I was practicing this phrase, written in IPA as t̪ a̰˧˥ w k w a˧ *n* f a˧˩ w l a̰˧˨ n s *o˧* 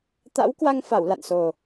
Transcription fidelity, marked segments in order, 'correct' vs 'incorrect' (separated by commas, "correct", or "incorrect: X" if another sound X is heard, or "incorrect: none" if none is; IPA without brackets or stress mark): incorrect: ŋ, incorrect: o˨˩